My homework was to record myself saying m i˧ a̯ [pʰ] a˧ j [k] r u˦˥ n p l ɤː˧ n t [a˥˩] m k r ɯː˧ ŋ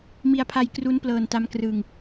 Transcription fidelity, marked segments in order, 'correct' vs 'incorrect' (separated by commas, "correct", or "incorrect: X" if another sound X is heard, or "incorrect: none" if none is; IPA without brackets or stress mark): correct, correct, incorrect: a˦˥